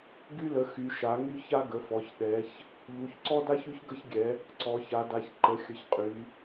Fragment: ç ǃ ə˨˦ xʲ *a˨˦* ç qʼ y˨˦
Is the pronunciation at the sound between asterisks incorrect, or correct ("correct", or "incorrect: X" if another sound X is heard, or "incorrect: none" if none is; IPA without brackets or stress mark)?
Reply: incorrect: ə˨˦